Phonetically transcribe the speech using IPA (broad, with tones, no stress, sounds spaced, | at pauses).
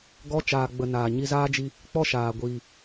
ɡ ɔ˦ t͡ʃ aː˨ ɡ͡b ə˨ n aː˨ ɲ i˧ z aː˦ d͡ʒ i˧ | k͡p ɔ˦ ʃ aː˨ ɡʷ iː˨